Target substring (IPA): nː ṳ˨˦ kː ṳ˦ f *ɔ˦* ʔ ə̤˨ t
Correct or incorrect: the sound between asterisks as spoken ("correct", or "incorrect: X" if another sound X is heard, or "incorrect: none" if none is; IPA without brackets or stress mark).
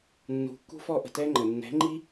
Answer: correct